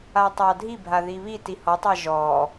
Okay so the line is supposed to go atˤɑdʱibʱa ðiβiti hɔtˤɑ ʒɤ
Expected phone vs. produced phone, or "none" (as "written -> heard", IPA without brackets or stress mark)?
ɤ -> ɔ